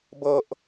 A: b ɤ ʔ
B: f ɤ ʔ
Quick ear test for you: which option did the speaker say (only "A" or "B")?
A